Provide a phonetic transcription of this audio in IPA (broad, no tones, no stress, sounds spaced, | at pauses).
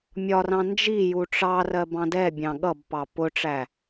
mʲ ɒ r ɑ̃ n d͡ʒ i j u ʈ͡ʂ ɑ r ɜ b ɑ̃ d ɛ bʲ ɑ̃ ɠ ʌ b p ɑ p ʊ ʈ͡ʂ æ